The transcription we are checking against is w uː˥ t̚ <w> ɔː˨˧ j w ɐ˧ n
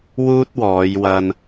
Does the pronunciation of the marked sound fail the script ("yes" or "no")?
no